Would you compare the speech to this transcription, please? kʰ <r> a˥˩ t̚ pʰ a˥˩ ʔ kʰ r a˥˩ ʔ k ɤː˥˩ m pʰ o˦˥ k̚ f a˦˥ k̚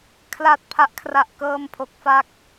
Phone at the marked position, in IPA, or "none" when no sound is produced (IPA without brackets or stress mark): l